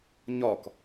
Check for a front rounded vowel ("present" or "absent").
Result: absent